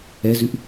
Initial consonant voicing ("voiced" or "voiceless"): voiced